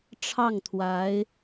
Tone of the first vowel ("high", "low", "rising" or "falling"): falling